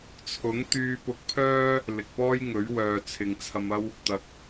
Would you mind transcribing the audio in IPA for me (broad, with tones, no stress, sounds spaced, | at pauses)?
t͡sʰ ʊ˨˥ ŋ t̪ yː˧ p ʊ˧ k̚ pʰ œː˥ | l ɪ˨ k̚ p ɔː˥ j ŋ ɵ˨˥ ɥ w œː˨ t͡sʰ ɪ˨ ŋ t͡sʰ ɐ˧ m ɐ˥ w | t̪ ɐ˨˥ k̚